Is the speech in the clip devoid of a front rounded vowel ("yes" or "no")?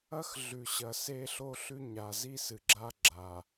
yes